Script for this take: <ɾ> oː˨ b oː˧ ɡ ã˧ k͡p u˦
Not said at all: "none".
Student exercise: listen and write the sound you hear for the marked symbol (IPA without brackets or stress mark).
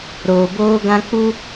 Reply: ɾ